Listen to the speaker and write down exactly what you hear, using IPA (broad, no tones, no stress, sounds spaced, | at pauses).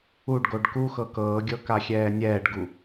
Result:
u ɖ ɡ o ɖ k u x ɤ k ɤː ɡʲ ɤ k a xʲ ɛː nʲ ɛː ɖ ɡ u